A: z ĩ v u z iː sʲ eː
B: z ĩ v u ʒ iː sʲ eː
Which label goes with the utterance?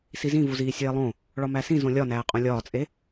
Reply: A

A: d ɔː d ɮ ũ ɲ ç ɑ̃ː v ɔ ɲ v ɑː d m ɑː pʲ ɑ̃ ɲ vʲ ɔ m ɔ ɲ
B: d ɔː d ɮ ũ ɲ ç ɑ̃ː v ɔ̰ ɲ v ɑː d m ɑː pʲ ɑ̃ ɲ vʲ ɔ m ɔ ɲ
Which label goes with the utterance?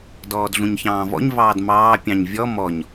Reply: B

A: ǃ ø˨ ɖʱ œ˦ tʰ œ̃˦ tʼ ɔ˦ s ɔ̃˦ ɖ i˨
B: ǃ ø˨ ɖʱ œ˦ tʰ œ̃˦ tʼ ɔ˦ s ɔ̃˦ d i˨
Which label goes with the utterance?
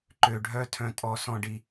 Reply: A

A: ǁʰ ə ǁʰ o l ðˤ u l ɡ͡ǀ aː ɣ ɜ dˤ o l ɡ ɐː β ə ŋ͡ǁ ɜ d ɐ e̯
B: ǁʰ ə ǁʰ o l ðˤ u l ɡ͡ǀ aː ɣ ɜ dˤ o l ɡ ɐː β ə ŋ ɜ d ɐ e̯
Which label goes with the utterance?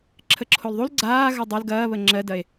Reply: A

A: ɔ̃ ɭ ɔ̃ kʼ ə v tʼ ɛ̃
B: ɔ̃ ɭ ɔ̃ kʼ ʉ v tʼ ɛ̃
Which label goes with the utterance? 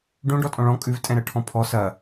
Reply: B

